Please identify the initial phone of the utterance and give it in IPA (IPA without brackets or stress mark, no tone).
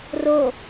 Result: r